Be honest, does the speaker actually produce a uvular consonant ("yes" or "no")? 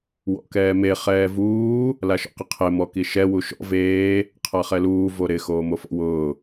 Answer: yes